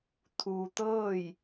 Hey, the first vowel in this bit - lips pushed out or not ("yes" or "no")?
yes